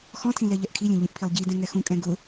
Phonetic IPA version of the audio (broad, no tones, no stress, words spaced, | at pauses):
xɔ̃tʰĩ lɛʎɛʔkʰilʲẽ ʎĩʔpʰilˠɟidɛ̃ ŋɛxũkʼɛ̃ ɡʊ